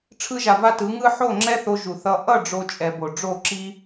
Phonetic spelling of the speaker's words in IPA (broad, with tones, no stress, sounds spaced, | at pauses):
ʈ͡ʂʰ ɯ˧ ʒ a˨ v a˧ t ɯ˨˦ ŋ ɯ˦ ħ o˦˨ ŋ͡ǁ ɛ˦ θ o˧ ʒ u˨ θ ʌ˧ ʔ ʌ˦˨ ɖ͡ʐ o˦ t͡ʃʼ ɛ˧ b o˨ ɖ͡ʐ o˦˨ ǁ i˦